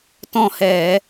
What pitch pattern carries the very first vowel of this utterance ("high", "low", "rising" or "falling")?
falling